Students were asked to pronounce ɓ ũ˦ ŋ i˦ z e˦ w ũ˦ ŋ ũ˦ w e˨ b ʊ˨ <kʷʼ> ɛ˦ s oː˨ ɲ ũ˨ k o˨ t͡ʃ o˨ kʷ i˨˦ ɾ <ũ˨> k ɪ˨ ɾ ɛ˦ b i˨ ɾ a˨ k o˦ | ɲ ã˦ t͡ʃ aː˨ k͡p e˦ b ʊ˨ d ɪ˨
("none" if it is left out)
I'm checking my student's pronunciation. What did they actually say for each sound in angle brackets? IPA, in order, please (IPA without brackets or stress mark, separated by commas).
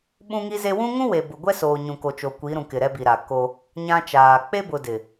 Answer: ɡʷ, ũ˨